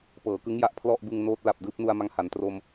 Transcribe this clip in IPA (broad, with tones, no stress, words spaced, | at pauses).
pɤː˩˦kɯ˦˥ŋja˨˩ʔ pʰlɔ˥˩ʔbɯ˧ŋ noː˦˥t̚ la˨˩p̚dɯː˥˩p̚nu˧a̯ma˧ŋ ha˩˦n tro˧m